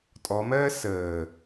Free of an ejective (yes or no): no